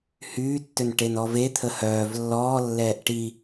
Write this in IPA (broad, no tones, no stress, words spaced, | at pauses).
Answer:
hyːtːønʈenɔ vet̪ʰə hœːv lːɔːlːɛːʔ ʈi